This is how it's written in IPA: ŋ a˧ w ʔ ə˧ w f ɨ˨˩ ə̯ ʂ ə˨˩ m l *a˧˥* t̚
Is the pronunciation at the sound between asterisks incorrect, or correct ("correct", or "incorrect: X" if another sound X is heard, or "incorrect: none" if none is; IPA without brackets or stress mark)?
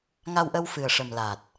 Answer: incorrect: a˨˩